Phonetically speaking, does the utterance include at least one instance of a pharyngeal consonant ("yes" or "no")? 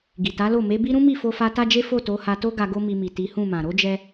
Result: no